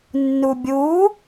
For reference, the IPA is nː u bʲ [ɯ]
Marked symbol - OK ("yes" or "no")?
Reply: no